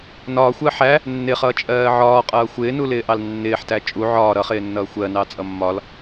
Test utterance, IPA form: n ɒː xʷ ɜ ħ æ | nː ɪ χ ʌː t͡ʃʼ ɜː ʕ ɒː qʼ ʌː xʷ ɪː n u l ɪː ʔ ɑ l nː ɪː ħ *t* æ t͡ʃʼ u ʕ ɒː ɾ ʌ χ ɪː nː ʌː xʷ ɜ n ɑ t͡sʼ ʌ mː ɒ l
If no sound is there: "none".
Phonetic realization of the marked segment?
t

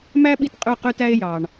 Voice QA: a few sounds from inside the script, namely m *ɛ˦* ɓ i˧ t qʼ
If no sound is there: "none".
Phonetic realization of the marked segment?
æ˦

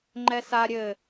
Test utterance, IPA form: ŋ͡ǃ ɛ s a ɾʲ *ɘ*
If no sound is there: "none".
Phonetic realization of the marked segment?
ɘ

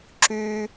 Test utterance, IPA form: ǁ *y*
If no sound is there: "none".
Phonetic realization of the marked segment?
y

